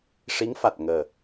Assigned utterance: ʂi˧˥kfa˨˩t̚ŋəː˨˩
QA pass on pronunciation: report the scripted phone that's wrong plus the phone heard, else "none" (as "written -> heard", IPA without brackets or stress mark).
k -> ŋ